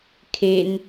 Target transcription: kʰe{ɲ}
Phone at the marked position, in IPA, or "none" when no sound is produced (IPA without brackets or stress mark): n